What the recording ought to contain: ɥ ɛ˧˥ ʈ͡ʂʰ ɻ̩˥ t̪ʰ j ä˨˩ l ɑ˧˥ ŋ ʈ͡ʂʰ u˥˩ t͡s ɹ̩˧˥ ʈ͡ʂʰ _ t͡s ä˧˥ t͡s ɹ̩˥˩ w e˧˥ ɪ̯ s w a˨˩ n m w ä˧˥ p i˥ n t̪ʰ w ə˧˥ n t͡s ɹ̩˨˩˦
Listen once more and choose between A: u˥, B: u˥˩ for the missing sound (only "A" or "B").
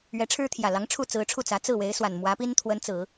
B